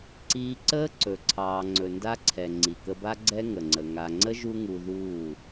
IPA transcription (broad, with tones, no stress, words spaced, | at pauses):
ǀiː˧ǀəː˦ ǀɵ˨ǀʰɑː˨ ŋ͡ǀɵ˨nda˦ǀʰɛ˨ ŋ͡ǀi˨kə˧ba˦ ɡ͡ǀɛ˦ ŋə˨ŋ͡ǀə˨ ŋa˨ŋ͡ǀə˦ ʒu˦ŋu˧ ðuː˦˨